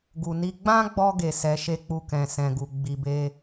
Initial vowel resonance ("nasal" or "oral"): oral